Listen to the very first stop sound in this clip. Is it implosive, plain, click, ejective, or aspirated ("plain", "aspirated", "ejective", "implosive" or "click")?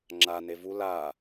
click